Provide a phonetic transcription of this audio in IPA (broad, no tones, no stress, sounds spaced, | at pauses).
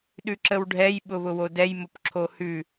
ɗ ʉ ǁ ə w ɖʱ ɛ j ɓ ʊ β ʊ w o d ɛ j m ʊ p ǁʰ o h ʉ